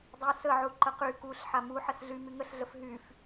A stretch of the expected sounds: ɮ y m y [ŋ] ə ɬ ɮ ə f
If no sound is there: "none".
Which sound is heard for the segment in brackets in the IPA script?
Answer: ŋ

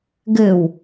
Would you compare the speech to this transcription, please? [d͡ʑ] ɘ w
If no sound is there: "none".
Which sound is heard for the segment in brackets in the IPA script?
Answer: ɡ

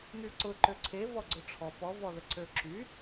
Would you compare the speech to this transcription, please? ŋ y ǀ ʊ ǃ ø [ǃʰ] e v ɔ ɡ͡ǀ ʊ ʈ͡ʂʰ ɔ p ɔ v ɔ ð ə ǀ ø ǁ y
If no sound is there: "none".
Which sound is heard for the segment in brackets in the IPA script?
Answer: ǀʰ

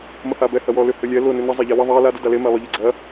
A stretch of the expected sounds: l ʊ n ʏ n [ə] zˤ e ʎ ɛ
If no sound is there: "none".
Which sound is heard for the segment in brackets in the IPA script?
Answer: ə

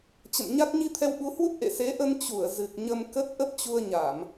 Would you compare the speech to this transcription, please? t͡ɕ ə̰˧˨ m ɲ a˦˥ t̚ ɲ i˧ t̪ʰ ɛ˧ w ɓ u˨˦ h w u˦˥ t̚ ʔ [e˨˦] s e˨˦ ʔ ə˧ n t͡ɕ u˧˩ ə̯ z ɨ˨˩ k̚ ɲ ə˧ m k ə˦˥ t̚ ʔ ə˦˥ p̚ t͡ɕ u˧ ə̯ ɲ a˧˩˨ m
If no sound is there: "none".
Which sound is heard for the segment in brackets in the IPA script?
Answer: ḛ˧˨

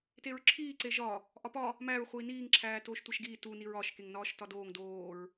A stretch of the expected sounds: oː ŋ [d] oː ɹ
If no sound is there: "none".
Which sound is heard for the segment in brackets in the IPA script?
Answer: d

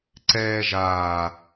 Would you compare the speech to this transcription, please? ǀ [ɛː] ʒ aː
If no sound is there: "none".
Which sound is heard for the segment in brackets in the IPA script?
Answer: ɛː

